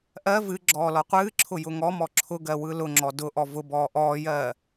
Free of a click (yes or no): no